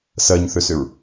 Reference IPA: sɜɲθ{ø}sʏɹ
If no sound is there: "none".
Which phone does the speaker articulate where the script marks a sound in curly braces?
ø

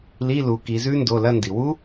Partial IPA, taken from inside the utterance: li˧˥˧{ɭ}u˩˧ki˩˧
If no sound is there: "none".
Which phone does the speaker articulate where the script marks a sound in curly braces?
l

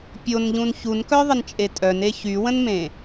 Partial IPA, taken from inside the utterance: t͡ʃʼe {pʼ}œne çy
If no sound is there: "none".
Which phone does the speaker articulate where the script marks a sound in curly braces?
tʼ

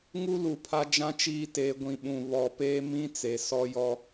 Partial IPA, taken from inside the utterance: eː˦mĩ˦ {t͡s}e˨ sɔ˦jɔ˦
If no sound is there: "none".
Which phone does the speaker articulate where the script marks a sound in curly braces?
t͡s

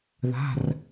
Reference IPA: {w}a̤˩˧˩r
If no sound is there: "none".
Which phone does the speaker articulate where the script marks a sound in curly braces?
ð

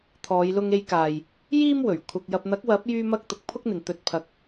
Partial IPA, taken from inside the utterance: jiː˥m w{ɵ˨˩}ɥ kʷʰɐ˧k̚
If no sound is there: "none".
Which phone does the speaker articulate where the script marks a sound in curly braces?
ɵ˨˩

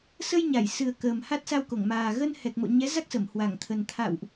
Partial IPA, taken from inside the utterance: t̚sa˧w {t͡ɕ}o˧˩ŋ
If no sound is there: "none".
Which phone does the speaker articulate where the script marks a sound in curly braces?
k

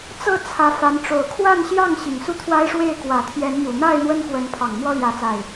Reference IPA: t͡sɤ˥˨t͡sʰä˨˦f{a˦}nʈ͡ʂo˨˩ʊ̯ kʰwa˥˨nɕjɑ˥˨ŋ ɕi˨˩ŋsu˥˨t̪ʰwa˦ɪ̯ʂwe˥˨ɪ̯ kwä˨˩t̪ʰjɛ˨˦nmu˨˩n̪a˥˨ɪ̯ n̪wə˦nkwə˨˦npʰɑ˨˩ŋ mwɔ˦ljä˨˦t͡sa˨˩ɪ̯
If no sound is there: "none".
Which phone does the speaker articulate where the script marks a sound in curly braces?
a˨˦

